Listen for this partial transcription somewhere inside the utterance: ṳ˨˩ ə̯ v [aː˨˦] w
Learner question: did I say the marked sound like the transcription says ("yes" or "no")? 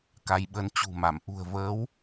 no